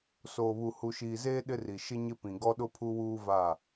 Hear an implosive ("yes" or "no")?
yes